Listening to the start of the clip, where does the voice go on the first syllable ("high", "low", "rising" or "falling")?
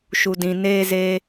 low